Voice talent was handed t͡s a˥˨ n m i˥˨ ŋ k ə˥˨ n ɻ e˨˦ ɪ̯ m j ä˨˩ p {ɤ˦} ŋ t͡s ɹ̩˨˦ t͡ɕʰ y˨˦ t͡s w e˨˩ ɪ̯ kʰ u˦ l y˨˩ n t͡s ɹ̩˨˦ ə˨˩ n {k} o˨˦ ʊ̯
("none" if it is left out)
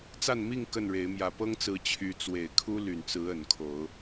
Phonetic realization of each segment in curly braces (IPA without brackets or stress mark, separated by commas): ɤ˦, kʰ